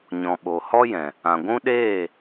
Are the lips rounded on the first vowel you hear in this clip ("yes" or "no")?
yes